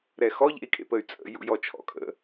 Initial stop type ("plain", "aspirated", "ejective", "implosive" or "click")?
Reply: ejective